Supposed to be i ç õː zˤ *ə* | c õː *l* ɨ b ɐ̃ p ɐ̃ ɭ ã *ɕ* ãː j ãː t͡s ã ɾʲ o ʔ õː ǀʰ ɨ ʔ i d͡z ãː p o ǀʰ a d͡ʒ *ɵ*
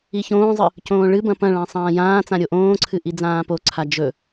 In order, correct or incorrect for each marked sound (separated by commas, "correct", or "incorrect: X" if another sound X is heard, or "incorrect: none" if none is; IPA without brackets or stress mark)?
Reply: incorrect: ɨ, incorrect: ɭ, incorrect: sˤ, correct